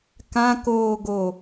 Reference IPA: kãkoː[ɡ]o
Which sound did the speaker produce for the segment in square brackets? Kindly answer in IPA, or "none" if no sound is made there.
ɡ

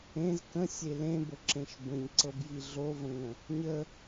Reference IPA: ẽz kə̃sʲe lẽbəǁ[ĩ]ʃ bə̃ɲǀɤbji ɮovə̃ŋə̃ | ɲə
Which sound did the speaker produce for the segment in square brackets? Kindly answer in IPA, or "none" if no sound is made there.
ẽ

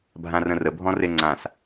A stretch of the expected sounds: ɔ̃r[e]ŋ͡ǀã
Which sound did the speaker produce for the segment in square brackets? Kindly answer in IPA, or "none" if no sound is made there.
e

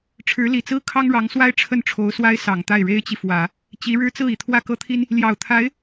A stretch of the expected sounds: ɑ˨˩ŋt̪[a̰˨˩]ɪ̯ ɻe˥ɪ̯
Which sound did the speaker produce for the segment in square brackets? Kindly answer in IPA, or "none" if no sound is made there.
a˥˩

